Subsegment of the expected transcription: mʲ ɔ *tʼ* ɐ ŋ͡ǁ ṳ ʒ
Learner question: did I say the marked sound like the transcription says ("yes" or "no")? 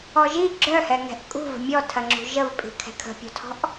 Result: no